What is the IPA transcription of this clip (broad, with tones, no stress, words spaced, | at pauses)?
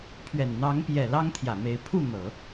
pʰɥɛ˨˩nn̪ɑ˧˥ŋpjɛ˨˩ lɑ˥ŋt̪ʰjä˨˩me˧˥ɪ̯ pʰu˥˩ n̪ɤ˨˩˦